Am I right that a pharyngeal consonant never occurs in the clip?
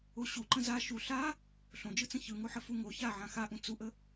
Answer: no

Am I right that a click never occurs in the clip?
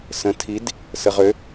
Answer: yes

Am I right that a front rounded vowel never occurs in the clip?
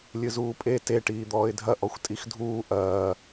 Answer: yes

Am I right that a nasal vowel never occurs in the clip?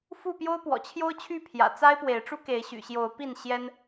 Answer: yes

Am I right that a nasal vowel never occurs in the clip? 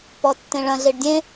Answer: no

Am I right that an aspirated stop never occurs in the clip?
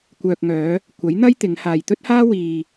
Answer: yes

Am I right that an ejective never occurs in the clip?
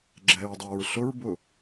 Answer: yes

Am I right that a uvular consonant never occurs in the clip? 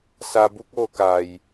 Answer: yes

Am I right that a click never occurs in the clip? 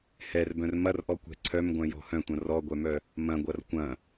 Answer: no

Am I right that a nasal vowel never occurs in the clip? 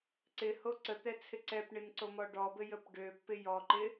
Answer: yes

